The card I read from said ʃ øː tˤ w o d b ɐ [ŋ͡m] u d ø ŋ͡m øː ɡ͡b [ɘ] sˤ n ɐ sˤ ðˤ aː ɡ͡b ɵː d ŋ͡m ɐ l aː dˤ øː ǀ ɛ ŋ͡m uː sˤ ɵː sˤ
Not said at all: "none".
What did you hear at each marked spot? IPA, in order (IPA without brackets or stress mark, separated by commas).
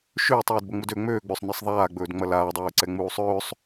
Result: ŋ͡m, ø